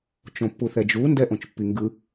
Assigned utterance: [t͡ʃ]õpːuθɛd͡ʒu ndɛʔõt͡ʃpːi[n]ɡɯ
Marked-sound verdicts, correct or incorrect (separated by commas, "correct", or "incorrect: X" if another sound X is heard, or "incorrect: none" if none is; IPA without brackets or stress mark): correct, incorrect: ŋ